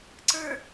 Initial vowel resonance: oral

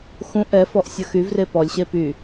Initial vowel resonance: nasal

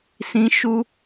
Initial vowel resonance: nasal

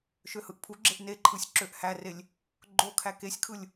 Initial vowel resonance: oral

